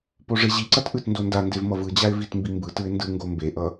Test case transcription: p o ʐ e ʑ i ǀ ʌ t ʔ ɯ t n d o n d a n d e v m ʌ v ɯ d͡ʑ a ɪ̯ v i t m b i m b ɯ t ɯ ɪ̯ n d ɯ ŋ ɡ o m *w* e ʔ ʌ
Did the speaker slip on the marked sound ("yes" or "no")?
yes